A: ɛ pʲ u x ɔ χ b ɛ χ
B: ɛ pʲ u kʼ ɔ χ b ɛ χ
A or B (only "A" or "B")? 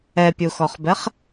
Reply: A